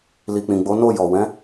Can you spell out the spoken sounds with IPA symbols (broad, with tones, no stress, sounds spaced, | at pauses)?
l i˨ k͡p ĩ˨ ɡ͡b o˨˦ n o˦˨ j ɔ˨ w ɛ̃˨˦